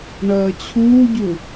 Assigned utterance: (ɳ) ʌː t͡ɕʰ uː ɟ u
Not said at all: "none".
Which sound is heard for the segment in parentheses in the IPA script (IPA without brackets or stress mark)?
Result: ɳ